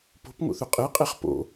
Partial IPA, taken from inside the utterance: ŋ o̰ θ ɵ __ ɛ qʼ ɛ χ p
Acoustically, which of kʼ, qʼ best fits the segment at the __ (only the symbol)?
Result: qʼ